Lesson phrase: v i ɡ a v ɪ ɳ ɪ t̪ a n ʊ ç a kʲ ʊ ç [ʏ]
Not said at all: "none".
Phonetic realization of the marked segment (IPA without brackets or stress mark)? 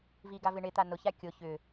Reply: ʏ